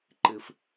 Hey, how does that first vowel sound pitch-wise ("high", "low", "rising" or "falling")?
low